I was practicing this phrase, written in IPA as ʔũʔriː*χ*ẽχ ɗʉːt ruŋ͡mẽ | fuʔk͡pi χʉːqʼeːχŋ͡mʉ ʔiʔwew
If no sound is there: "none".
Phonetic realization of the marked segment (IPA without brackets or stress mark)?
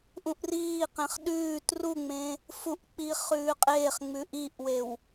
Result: q